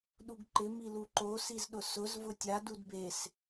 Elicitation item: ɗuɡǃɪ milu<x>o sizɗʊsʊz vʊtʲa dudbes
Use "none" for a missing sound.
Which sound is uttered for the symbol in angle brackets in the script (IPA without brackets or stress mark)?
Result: ǃ